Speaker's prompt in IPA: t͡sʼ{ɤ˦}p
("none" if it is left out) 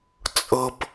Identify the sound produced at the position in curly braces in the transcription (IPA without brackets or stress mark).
ɤ˦